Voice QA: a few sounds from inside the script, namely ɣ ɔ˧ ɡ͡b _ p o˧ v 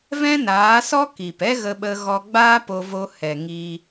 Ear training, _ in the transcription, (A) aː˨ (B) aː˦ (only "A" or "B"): B